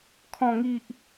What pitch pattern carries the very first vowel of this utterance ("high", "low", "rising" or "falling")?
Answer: low